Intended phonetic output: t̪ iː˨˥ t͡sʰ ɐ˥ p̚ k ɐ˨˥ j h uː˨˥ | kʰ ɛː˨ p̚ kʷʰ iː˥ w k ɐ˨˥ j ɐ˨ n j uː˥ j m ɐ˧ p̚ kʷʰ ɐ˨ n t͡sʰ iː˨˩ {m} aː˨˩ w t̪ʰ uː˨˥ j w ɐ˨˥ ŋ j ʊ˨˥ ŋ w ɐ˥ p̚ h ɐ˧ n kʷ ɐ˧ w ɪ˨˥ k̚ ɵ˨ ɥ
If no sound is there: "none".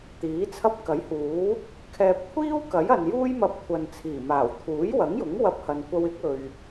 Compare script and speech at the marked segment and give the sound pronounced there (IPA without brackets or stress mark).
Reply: m